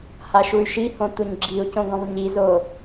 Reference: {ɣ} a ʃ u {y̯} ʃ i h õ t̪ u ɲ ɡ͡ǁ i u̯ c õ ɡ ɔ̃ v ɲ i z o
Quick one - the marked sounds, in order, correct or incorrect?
incorrect: h, correct

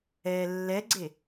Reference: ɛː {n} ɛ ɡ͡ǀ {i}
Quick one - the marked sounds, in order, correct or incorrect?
incorrect: lː, incorrect: e

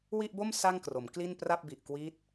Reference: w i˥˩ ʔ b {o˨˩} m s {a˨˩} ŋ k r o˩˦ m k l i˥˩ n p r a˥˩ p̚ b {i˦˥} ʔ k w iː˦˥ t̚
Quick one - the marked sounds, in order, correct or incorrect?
incorrect: o˥˩, incorrect: a˥˩, incorrect: i˨˩

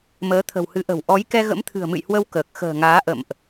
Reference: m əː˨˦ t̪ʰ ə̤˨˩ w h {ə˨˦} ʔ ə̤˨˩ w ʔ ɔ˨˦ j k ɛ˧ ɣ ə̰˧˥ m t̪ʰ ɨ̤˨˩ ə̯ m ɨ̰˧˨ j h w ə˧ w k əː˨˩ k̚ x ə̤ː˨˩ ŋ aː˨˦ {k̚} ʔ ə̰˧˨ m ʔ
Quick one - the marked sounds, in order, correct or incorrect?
incorrect: ɨ˨˦, incorrect: none

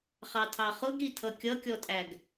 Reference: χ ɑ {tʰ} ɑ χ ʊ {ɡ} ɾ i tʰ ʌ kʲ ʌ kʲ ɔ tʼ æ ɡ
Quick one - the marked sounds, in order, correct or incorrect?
correct, correct

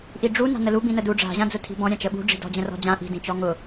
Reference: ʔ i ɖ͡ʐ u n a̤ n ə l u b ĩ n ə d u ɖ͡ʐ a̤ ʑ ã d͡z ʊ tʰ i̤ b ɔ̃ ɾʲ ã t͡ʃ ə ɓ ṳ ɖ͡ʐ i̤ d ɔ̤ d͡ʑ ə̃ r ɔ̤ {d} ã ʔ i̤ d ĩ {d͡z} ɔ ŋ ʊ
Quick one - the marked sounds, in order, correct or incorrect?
incorrect: d͡ʑ, incorrect: t͡ʃ

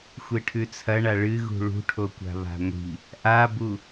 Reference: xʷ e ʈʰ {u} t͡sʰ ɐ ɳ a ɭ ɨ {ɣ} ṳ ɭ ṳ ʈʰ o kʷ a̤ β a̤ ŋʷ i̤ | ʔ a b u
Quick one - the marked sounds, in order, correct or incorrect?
incorrect: ʉ, correct

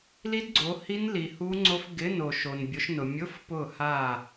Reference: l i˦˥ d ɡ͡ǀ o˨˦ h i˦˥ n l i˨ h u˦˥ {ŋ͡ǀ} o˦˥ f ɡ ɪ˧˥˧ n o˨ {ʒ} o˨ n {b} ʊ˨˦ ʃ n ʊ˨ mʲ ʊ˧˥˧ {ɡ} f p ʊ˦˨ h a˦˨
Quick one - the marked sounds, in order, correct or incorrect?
correct, incorrect: ʃ, incorrect: bʲ, incorrect: none

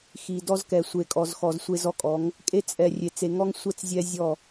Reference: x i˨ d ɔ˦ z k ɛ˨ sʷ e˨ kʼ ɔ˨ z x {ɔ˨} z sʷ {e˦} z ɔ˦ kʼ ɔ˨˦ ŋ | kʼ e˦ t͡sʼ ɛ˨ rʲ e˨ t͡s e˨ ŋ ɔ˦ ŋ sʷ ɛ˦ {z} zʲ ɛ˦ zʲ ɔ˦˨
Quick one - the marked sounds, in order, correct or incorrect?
correct, correct, incorrect: t͡s

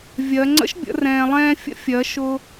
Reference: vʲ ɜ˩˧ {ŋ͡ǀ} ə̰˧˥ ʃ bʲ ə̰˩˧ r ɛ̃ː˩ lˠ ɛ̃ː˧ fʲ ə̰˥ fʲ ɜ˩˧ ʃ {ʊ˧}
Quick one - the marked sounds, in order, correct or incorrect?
correct, correct

